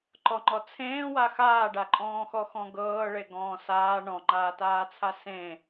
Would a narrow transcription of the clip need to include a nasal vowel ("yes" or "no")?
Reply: yes